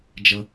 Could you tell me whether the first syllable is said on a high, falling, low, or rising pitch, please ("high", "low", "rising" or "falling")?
low